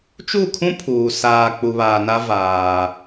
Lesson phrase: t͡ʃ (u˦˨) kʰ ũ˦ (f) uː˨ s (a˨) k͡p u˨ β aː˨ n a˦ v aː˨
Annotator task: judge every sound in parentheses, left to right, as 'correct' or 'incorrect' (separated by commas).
correct, incorrect, incorrect